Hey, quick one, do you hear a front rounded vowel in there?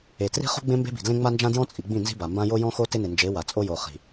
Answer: no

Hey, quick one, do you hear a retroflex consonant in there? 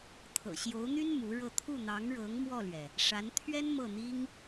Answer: yes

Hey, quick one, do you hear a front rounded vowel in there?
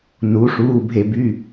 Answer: yes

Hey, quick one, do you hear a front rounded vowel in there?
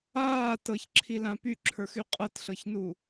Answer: yes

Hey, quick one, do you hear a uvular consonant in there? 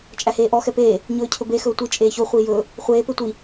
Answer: yes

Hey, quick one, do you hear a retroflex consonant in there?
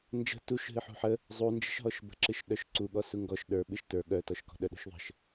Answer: no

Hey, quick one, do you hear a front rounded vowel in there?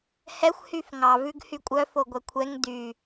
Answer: yes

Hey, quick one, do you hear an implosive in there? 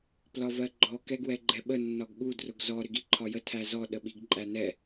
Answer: yes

